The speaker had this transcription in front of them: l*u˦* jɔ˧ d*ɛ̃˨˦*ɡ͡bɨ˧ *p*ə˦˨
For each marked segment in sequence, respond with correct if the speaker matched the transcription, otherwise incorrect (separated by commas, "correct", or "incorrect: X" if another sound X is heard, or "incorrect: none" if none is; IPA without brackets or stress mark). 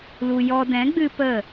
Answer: incorrect: u˧, correct, correct